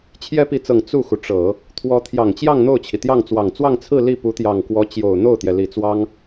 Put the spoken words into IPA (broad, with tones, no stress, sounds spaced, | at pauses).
t͡ɕʰ j ɛ˥ p i˧˥ t͡s ɤ˨˩ ŋ t͡s u˥˩ x u˩ ʈ͡ʂ ɤ˨˩˦ | t̪ʰ w ɔ˧˥ t̪ʰ j ɑ˨˩ ŋ t͡ɕ j ɑ˥˧ ŋ n̪ o˥˩ ʊ̯ t͡ɕʰ i˩ t̪ j ɑ˥˩ ŋ t͡s w ɑ˨˩ ŋ t͡s w ɑ˥˧ ŋ t͡sʰ ɹ̩˥˧ l i˥˩ p u˧˥ t̪ j ɑ˨˩ ŋ k w ɔ˧˥ t͡ɕ j o˨˩ ʊ̯ n̪ o˥˩ ʊ̯ t̪ j ɛ˩ l i˨˩ t͡s w ɑ˥ ŋ